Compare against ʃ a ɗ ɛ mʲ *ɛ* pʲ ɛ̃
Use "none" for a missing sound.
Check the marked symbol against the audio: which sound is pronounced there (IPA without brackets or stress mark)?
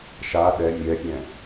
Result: ɛ